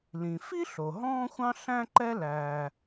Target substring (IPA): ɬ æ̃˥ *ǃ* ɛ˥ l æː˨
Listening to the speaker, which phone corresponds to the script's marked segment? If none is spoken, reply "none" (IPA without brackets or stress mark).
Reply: ǃ